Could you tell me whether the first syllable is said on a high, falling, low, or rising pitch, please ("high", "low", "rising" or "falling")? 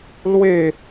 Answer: falling